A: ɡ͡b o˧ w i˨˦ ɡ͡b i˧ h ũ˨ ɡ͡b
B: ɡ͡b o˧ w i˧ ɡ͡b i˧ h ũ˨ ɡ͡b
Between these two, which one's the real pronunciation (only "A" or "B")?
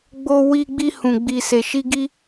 B